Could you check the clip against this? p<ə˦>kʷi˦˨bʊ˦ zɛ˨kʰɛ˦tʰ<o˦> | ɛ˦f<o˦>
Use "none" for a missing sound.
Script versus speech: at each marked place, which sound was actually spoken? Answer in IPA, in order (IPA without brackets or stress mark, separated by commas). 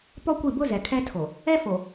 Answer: ɔ˦, o˨, o˨